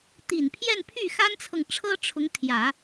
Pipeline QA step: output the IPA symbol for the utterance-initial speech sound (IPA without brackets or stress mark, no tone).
t̪